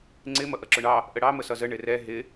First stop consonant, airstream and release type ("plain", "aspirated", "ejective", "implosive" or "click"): click